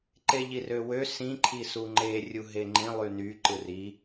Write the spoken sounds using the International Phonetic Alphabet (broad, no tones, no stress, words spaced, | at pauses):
ǃeʎirøwø sĩ ǃʰisuŋ͡ǃe rʲuɦeŋ͡ǃĩ lˠyny ǃɯri